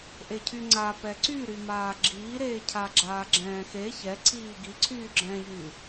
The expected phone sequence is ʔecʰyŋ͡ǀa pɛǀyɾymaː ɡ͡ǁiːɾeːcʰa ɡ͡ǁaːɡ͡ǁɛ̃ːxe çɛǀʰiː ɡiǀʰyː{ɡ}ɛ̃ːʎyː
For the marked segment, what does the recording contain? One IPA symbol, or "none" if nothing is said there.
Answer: ɡ͡ǁ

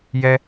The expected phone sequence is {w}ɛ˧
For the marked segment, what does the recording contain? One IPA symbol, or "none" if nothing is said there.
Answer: j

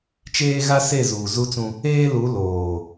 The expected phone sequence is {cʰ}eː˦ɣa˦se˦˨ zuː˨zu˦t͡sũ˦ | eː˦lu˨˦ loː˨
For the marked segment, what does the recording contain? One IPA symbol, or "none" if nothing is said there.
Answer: t͡ʃ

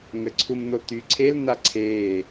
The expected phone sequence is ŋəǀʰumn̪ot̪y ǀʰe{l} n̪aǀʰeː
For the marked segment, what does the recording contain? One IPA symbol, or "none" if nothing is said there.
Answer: l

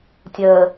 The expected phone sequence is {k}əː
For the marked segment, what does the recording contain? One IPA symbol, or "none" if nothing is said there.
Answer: tʲ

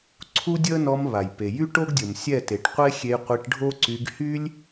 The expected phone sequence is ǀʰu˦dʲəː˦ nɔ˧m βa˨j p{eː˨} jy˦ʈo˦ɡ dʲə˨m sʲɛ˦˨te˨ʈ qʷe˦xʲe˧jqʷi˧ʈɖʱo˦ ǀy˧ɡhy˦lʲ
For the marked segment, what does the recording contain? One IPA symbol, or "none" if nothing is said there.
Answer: e˨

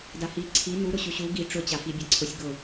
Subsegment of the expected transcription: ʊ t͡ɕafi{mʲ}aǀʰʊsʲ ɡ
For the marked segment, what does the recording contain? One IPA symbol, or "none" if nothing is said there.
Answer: bʲ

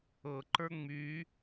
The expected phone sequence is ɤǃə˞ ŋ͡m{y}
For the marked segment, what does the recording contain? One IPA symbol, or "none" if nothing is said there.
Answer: y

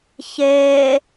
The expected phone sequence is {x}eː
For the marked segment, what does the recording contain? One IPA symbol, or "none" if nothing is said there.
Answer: ç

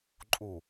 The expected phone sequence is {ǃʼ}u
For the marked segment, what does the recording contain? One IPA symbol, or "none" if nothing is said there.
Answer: ǃʼ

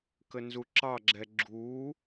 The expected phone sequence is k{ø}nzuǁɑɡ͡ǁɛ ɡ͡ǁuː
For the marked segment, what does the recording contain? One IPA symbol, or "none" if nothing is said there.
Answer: ə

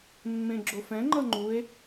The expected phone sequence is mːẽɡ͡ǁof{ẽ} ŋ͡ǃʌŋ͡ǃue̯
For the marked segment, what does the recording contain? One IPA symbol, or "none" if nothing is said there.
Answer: ɛ̃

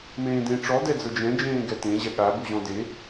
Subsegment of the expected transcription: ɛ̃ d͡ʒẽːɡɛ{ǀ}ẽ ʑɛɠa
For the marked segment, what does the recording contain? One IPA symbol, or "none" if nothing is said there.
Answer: t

